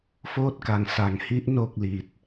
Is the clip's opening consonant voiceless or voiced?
voiceless